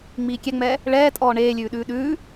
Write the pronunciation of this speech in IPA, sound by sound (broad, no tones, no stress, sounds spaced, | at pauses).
ŋ͡m iː kʲ ɛ ŋ͡m ɛː | ɭ ɛː tʼ ɔː ɳ eː lʲ ʉː ɗ ʉː ɗ ʉː